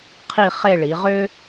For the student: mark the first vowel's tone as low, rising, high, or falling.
falling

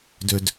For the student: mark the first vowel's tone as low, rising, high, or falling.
low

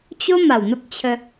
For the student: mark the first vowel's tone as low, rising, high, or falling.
high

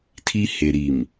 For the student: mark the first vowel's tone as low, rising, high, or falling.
high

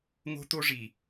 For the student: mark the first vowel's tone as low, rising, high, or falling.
high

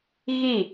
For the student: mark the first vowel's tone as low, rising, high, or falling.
falling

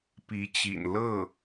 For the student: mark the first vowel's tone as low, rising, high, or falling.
rising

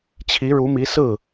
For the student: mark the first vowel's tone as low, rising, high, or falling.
rising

